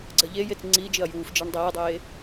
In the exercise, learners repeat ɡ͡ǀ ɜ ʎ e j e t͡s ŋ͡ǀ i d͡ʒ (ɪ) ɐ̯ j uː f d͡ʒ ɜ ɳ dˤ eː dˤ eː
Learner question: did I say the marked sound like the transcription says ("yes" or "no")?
yes